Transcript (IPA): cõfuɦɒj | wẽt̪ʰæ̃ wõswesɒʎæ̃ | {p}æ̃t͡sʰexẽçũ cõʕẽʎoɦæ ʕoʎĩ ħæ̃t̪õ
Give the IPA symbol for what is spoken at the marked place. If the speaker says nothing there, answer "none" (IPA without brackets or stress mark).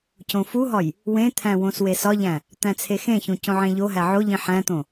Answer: t̪